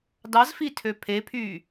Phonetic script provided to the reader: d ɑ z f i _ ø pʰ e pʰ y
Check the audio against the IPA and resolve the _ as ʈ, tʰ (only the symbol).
tʰ